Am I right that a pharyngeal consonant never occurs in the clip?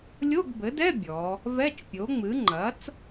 yes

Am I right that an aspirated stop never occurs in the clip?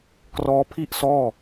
no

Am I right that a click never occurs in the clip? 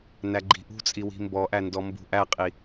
no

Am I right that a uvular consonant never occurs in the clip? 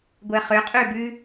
no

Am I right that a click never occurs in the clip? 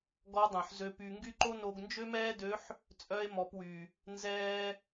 no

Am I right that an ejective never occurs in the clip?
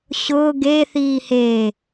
yes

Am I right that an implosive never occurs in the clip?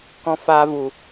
yes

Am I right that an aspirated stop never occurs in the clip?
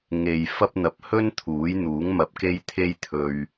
no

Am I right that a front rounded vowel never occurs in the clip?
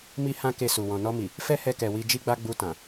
yes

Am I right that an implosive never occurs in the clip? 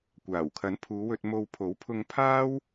yes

